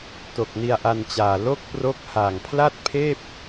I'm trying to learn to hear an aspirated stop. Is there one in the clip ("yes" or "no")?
yes